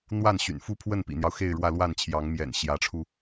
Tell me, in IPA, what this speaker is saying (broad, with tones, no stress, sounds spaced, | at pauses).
n̪ w a˥˩ n ɕ y̰˨˩ n f u˥ pʰ w ə˥˩ n p ḭ˨˩ n̪ j ɑ˦ ʊ̯ x e˥˧ ɪ̯ ɻ w ä˥˧ l w a˥˩ n t͡ɕʰ j ɑ˧˥ ŋ m j ɛ̰˨˩ n ɕ j ä˧˥ ʈ͡ʂʰ u˧